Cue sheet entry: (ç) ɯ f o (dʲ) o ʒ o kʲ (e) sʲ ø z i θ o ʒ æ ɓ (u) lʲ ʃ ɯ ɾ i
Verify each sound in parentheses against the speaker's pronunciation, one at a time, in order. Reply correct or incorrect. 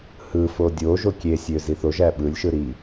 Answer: incorrect: h, correct, correct, incorrect: ɯ

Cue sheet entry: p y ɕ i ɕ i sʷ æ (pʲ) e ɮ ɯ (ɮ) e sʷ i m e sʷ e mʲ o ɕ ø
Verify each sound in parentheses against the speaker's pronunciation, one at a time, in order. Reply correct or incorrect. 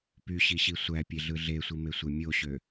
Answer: correct, correct

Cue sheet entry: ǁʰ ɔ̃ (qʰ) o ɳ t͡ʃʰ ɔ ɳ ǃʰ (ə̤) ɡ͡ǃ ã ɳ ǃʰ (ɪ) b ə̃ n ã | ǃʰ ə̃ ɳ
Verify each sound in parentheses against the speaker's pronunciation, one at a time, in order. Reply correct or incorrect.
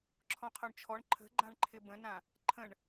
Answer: correct, correct, correct

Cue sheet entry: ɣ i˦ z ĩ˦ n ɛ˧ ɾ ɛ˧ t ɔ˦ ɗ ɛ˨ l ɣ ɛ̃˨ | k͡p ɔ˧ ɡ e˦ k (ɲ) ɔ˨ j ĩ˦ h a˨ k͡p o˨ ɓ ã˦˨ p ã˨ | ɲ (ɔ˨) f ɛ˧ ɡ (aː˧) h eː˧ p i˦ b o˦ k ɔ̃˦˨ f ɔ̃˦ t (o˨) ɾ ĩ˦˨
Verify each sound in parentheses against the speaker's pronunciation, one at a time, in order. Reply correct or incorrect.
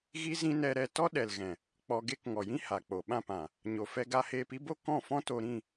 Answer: incorrect: ŋ, incorrect: o˨, incorrect: a˧, incorrect: o˧

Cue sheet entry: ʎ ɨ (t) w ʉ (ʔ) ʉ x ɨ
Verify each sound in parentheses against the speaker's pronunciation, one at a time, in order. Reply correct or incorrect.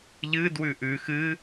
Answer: incorrect: d, correct

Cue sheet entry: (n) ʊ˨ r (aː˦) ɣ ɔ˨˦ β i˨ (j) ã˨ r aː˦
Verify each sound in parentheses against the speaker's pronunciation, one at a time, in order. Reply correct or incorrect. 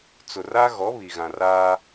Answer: incorrect: t͡s, incorrect: a˦, incorrect: ɣ

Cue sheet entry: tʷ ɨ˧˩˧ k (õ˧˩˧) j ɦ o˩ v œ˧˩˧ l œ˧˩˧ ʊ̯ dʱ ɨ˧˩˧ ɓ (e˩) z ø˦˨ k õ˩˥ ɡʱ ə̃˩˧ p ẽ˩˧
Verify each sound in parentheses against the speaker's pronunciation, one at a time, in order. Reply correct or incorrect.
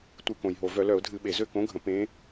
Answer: incorrect: õ˩, correct

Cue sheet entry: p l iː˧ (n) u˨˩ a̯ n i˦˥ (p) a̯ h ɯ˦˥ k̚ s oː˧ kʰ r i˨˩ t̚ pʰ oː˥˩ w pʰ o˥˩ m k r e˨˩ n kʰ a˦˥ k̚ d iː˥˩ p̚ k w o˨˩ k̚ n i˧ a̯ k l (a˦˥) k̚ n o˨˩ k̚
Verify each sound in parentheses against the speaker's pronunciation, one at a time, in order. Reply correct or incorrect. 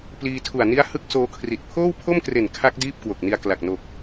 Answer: incorrect: tʰ, incorrect: none, incorrect: a˨˩

